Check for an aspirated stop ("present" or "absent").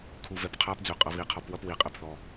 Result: present